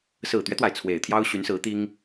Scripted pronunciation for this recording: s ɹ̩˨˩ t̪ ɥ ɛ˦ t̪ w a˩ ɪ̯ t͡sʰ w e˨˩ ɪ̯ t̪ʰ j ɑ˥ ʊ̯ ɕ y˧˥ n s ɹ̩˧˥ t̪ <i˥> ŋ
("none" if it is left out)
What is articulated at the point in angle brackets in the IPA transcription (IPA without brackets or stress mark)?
i˥